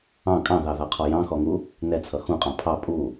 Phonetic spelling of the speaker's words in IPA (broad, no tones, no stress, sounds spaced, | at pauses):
ɑ̃ kʼ ɑ̃ ð ɑ ð ɑ qʰ ɔ j ɑ̃ x ɔ ŋ u | n ɛ t͡sʰ ʌ x ũ qʼ ɑ̃ pʰ ɑ pʼ u